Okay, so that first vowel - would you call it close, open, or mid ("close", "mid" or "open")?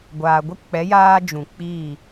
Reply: open